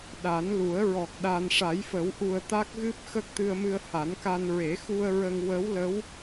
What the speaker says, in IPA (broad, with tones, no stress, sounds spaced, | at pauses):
ɗ a˨˩˦ n l u˨˩˦ ə̯ ɹ ɔ˨˩ k̚ ɗ a˧ n ʂ a˨˩˦ j f ə˨˩˦ w ʔ u˨˩ ə̯ t̪ a˦˥ k̚ ɣ ɨ˦˥ p̚ x ə˦˥ k̚ t̪ ɨ˧ ə̯ m ɨ˧ ə̯ h a˨˩˦ n k a˧ n ɹ e˨˩˦ x u˧ ə̯ ɹ ə˧ ŋ w ə˧˥ w l ə˧˥ w